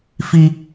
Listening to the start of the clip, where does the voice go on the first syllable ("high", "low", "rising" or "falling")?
high